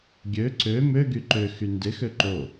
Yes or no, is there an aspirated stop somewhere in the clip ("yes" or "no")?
no